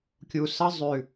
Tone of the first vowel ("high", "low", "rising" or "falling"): low